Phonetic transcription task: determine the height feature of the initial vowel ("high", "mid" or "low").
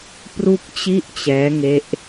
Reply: high